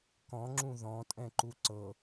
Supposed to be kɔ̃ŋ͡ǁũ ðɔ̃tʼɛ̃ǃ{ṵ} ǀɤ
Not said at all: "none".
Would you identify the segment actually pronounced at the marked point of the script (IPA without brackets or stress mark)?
u